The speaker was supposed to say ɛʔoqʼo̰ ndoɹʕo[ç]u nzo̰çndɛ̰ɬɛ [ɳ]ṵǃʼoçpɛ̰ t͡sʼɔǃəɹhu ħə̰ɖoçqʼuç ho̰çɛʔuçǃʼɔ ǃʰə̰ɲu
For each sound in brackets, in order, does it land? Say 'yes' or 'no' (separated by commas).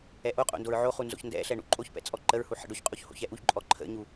no, yes